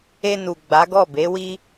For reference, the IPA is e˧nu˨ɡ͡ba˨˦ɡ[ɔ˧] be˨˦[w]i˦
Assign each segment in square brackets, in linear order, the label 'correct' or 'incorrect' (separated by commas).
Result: incorrect, correct